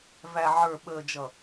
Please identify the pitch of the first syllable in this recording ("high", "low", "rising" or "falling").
low